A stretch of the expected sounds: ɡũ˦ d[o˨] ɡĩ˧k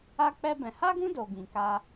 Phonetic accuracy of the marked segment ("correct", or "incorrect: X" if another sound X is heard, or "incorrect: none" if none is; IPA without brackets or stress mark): incorrect: o˧